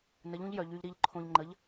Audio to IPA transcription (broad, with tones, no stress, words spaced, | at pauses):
nə˨˥ʎũ˨˥ʎjœ˩˧ʎ y˧ʎɾi˥˨ʎǃʰõ˧ʎŋ͡ǃə˨˥ʎ